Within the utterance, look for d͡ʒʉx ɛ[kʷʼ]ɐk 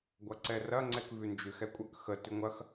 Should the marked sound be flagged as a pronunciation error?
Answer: no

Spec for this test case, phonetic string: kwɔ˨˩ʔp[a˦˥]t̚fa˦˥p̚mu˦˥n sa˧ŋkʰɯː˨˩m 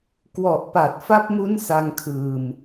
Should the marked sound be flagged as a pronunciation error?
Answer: yes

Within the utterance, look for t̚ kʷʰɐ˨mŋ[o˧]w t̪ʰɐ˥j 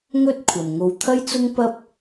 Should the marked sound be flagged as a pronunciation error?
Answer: no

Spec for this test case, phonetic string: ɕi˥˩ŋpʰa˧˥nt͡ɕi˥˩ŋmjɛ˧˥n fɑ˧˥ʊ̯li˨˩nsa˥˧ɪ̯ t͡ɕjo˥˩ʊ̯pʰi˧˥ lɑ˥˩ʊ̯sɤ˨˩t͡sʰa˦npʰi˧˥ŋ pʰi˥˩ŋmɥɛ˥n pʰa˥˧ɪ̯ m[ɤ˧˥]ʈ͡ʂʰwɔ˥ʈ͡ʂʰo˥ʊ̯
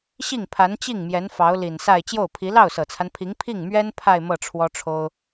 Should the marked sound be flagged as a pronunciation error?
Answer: yes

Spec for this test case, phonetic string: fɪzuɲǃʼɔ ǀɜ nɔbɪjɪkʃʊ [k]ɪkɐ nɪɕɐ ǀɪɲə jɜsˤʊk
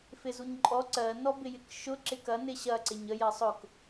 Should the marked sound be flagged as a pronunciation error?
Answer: yes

